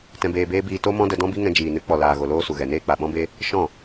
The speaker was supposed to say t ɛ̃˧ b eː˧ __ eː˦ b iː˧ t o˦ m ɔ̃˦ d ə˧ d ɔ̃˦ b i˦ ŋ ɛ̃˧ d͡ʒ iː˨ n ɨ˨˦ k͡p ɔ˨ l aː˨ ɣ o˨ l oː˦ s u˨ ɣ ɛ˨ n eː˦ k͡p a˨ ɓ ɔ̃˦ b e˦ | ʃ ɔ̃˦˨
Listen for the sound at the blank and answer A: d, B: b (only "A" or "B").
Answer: B